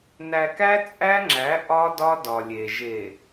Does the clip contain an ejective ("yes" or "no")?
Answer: yes